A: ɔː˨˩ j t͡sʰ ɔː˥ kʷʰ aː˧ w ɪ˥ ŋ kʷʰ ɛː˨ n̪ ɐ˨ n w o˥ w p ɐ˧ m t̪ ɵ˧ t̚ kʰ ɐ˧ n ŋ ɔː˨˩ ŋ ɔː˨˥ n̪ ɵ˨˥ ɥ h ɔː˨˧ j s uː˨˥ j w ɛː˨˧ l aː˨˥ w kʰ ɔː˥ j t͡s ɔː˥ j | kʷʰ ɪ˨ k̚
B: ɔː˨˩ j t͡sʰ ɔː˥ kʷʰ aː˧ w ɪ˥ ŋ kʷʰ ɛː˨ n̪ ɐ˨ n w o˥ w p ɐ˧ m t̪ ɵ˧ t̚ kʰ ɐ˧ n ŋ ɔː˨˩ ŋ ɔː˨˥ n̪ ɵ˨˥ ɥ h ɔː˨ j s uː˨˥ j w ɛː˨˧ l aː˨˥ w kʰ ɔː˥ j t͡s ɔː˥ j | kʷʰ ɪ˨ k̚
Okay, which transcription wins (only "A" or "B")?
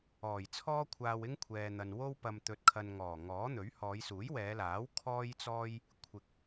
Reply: A